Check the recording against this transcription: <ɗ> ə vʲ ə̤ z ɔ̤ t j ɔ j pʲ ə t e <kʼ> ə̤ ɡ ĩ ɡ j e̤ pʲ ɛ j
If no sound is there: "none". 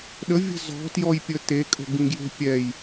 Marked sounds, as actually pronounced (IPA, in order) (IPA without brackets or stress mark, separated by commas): ɗ, kʼ